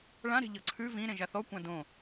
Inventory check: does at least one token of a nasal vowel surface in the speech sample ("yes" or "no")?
yes